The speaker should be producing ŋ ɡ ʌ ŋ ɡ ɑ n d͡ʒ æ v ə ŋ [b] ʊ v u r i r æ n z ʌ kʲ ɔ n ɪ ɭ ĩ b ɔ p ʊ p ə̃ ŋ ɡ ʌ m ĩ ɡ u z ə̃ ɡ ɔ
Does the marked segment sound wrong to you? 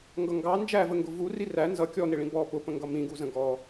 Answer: yes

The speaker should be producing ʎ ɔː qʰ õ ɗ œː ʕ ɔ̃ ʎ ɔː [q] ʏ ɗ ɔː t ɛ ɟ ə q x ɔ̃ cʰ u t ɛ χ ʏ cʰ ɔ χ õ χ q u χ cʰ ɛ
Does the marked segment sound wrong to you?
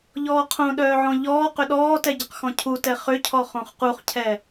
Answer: no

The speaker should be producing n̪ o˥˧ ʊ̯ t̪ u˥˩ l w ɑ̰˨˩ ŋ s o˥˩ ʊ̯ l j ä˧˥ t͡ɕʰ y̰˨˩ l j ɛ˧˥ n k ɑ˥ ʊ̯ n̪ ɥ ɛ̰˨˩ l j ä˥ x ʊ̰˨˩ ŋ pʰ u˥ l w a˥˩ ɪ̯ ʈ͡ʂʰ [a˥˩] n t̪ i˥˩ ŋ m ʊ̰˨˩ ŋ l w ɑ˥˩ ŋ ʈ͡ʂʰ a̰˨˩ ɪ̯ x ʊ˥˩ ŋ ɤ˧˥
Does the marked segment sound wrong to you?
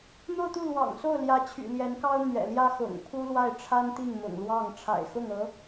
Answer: yes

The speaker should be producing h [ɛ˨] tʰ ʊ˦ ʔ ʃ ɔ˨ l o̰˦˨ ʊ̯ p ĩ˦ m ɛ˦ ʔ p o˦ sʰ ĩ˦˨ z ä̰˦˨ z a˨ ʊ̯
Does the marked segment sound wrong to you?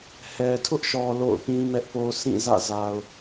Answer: no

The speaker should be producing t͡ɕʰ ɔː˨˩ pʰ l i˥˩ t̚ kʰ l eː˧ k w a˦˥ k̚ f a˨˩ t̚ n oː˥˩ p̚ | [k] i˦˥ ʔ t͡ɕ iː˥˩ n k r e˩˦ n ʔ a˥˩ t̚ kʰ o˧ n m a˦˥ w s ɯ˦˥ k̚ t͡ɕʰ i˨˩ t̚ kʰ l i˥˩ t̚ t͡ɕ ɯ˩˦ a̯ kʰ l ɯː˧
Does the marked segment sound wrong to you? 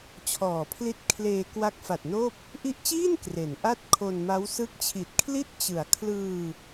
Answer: yes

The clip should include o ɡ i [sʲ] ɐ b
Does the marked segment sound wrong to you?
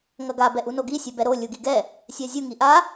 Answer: no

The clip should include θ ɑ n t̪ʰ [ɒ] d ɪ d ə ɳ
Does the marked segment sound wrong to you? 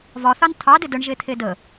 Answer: yes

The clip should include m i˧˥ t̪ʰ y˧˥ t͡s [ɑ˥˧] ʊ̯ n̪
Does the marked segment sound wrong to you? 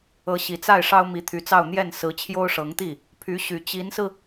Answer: no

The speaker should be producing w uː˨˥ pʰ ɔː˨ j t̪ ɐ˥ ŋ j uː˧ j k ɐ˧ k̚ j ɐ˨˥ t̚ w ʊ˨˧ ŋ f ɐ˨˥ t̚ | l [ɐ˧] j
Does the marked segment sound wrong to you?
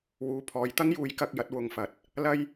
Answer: yes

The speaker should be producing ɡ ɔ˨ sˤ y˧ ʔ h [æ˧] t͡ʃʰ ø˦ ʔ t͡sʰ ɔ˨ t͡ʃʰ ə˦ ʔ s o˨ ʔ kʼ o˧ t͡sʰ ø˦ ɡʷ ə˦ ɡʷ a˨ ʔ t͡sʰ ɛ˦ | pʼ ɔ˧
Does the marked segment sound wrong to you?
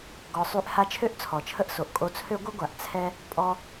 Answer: yes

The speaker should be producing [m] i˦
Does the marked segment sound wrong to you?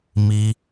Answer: no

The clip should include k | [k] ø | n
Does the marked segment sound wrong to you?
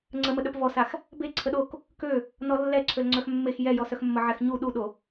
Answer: no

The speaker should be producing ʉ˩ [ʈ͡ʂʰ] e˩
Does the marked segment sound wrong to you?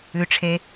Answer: no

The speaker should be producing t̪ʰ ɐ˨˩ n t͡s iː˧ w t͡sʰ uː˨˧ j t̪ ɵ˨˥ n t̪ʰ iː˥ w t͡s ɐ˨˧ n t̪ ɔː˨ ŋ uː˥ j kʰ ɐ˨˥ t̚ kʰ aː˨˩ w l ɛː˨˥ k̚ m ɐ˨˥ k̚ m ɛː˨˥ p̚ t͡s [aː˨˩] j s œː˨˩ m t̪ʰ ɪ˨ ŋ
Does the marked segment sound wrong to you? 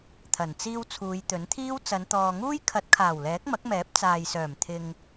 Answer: yes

